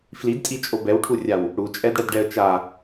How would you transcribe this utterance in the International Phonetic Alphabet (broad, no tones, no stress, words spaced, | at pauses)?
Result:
flidtʼit͡ʃʼo bɛwʈʰurʲaw | ɽut͡ʃʼɛdɽɛdɖɛə̯ t͡ʃa